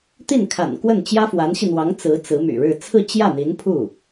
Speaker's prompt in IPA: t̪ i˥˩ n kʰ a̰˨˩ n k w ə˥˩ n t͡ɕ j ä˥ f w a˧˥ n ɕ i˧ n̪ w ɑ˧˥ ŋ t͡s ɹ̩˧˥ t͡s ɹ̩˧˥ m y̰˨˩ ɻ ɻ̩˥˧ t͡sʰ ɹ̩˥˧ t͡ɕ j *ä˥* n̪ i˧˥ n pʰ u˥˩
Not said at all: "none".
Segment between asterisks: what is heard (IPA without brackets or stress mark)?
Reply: ä˥˩